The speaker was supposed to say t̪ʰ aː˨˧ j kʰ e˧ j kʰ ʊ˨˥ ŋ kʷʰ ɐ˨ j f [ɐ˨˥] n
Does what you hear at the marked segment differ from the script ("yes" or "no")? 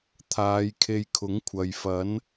no